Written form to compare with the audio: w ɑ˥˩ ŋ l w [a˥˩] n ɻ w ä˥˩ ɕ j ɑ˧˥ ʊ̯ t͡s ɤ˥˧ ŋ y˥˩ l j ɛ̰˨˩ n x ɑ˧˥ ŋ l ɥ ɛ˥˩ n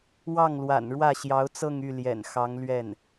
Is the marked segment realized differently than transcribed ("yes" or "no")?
yes